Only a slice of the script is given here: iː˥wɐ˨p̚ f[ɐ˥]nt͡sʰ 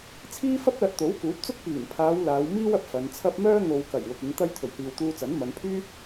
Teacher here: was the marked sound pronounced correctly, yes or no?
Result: no